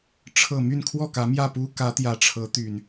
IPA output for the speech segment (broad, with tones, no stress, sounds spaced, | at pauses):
ʈ͡ʂʰ ɤ˨˩ m y˥˨ n kʰ w ɔ˥˨ k ä˨˦ m j ä˥˨ p u˦ k ä˨˦ t̪ j ä˨˦ ʈ͡ʂʰ ɤ˨˦ t̪ y˨˩ n